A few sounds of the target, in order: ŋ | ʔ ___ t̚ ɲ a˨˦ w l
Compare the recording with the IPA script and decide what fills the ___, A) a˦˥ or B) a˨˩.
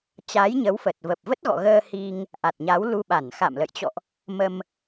B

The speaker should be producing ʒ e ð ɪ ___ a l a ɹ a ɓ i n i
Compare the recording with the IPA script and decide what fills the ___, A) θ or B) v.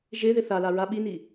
A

